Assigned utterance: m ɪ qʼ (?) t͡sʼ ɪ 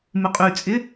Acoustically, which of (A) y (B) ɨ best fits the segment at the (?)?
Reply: A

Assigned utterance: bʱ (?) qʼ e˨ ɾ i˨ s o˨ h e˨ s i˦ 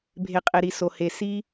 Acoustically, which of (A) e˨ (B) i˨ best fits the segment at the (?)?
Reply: A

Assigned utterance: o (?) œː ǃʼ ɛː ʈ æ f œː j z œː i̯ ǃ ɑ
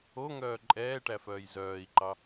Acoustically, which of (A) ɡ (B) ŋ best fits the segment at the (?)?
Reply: B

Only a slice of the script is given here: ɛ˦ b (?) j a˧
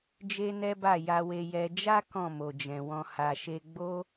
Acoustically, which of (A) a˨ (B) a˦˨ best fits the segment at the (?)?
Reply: B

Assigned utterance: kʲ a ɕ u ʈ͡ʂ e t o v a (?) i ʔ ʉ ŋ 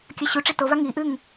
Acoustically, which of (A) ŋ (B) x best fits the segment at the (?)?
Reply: A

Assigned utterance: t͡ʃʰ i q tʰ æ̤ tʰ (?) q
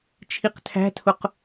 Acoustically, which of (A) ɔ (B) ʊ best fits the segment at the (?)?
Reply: B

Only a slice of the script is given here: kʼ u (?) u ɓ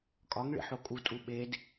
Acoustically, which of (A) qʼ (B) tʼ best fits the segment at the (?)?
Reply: B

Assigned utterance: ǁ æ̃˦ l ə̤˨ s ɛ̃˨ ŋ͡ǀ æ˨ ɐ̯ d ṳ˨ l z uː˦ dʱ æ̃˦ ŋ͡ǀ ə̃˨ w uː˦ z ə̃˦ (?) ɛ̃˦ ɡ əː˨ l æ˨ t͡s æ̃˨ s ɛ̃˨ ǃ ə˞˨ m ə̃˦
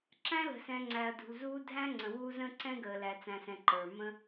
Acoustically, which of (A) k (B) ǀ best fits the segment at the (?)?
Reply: B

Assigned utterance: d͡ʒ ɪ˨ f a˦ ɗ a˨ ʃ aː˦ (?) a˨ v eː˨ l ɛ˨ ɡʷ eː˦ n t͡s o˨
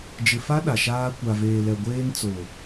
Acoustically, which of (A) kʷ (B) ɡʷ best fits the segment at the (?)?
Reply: A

